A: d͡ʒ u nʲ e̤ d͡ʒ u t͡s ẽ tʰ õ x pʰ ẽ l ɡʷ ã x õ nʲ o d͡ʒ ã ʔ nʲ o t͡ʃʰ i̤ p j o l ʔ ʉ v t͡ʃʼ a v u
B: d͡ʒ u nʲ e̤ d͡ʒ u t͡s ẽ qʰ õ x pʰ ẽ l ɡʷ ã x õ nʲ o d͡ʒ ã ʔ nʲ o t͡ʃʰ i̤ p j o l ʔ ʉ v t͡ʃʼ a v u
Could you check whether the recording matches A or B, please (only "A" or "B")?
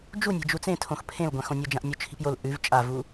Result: A